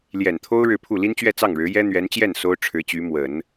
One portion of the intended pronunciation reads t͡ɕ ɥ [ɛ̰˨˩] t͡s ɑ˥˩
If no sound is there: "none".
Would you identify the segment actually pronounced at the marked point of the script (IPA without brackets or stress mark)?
ɛ˥˧